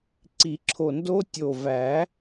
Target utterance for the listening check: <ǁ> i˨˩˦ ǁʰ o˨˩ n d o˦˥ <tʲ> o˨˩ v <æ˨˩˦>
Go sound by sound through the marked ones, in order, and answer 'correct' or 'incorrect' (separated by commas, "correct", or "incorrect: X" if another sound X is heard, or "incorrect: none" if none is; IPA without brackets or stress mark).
incorrect: ǀ, correct, correct